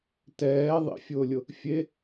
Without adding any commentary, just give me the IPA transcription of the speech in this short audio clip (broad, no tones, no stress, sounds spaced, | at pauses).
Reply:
t ɛː ðˤ ḭ fʲ ʊː lʲ ʊ | fʲ e